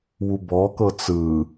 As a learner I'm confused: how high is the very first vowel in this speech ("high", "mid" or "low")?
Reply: high